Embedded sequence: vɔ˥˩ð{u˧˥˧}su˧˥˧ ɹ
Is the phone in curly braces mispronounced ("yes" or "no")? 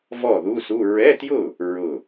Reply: no